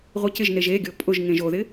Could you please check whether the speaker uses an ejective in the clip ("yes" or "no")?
yes